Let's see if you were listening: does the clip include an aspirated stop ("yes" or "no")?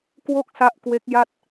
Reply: no